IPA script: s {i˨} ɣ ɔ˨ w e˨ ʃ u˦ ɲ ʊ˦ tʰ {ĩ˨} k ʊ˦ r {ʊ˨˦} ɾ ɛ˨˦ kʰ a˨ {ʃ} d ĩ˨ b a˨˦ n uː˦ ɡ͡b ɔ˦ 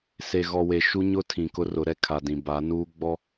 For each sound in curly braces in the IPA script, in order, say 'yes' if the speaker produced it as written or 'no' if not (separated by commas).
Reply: no, yes, yes, no